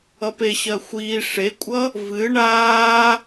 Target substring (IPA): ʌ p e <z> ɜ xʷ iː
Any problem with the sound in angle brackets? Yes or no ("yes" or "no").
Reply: yes